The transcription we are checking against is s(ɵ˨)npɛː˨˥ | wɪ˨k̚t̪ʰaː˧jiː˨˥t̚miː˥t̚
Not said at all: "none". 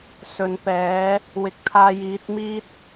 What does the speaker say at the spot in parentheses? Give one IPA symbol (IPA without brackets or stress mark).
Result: ɵ˨